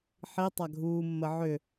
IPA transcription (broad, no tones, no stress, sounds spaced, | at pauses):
ħ i tˤ a ɡʱ uː mː ə ʕ ʏ